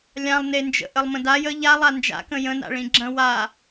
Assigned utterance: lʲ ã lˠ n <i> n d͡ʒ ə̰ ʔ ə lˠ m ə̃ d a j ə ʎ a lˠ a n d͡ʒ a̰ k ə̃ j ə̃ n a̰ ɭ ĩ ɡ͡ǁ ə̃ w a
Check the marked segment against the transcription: incorrect: e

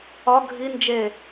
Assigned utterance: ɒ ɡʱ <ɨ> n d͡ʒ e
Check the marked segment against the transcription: incorrect: i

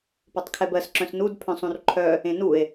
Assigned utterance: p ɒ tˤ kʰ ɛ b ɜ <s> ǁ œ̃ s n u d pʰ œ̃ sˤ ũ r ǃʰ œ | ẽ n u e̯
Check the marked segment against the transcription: correct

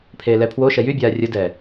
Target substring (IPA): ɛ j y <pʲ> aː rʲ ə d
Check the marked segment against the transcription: incorrect: bʲ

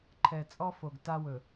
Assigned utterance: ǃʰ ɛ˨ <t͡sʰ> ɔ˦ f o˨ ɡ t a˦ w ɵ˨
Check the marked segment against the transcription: incorrect: t͡sʼ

